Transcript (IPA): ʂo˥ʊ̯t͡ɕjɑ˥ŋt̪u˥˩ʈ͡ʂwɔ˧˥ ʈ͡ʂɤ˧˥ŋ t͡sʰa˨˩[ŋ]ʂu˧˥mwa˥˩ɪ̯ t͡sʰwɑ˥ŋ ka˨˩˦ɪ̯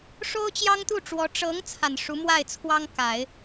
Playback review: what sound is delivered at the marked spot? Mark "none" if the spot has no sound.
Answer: n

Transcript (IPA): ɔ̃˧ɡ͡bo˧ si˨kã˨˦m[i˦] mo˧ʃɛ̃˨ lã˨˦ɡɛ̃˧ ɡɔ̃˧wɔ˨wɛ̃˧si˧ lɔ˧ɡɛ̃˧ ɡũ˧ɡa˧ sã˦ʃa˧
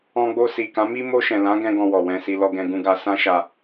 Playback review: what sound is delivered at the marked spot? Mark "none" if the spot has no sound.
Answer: i˦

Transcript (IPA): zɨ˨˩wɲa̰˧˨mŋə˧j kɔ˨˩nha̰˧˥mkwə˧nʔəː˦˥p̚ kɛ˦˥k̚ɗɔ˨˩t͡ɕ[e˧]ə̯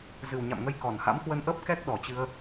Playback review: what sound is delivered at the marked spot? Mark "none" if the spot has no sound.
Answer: ɨ˧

